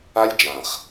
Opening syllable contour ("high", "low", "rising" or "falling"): high